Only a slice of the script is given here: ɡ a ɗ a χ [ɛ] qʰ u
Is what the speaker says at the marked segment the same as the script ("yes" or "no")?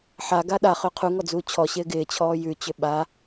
no